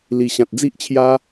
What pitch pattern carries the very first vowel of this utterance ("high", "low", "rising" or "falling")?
low